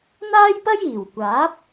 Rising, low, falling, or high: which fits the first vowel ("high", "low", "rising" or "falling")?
high